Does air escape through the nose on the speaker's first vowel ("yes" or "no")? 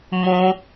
yes